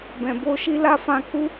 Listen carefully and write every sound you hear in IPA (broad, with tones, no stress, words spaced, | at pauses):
bɛ̃˨ bo˧ʃi˧ la˦fã˧ ku˧